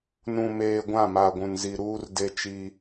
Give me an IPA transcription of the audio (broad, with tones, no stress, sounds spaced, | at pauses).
n ũ˨ m eː˨ ɡʷ ã˦˨ m a˨ ɡʷ ũ˨ n z i˨ ɾ uː˦ r d e˦ t͡ʃ i˦